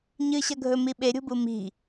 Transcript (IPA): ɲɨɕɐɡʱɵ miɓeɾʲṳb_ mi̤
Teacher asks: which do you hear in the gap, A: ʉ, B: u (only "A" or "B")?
B